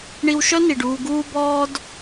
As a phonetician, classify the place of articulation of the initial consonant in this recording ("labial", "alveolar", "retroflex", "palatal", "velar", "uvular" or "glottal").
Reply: retroflex